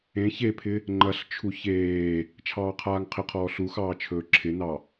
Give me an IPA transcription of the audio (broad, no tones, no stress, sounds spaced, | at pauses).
ẽ ç e pʰ ɪ | ŋ͡ǃ ɐ ɬ t͡ʃʰ u ç eː | t͡ʃʰ ɑː qʰ aː ŋ qʰ ɪ qʰ ɔː ɬ u x ɑː t͡ʃʰ ɵː ǁʰ ɪ n ɑ